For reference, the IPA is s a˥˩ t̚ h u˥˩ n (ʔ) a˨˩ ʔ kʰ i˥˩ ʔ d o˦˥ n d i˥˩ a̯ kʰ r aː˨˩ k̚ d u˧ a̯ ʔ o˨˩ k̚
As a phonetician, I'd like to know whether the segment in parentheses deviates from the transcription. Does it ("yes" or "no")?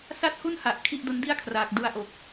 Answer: yes